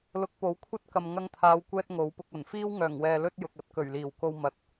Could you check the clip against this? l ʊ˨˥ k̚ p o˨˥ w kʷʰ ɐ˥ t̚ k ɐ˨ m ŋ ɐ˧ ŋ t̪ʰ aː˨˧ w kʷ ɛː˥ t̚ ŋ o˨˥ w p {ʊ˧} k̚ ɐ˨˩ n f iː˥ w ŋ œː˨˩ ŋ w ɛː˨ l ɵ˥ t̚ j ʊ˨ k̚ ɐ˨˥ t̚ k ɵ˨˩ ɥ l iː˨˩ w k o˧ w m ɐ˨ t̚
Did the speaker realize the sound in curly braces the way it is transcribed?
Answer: yes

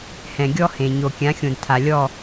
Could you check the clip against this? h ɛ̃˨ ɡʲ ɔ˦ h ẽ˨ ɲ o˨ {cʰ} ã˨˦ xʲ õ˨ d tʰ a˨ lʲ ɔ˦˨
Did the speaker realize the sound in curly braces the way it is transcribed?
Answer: no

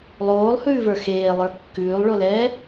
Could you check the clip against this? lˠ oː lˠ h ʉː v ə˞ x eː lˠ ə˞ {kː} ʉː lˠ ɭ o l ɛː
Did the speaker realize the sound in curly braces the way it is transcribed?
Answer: yes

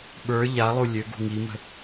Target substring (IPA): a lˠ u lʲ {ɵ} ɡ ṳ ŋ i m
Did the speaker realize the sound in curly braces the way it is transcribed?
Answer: no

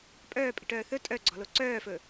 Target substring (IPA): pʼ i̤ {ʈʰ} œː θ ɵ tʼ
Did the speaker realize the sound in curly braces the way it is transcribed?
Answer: no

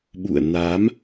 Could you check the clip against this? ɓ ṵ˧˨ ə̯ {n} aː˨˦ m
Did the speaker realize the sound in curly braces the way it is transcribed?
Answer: yes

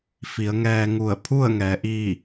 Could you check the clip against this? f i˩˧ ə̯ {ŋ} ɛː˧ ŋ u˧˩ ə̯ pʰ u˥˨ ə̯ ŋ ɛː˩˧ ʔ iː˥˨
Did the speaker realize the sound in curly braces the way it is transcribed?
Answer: yes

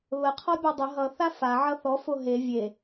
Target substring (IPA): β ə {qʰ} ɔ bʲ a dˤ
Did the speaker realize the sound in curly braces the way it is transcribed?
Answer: yes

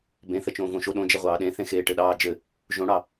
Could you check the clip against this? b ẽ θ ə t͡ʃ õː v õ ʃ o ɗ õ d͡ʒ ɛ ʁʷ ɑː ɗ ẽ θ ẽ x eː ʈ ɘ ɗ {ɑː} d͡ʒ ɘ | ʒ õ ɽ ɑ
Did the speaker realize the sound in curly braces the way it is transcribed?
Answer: yes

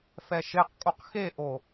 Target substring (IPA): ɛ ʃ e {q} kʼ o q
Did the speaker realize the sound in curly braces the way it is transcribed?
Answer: yes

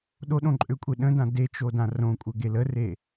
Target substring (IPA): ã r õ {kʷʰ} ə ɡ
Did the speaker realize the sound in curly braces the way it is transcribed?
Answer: no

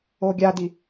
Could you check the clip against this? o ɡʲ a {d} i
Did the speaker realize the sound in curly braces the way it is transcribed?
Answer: yes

